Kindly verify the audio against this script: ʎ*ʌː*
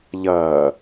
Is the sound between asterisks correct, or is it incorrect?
correct